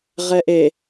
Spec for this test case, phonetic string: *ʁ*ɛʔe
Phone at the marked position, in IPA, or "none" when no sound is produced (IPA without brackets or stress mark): ʁ